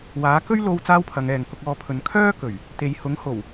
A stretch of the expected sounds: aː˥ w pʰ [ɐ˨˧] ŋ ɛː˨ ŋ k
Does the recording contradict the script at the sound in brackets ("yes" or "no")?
no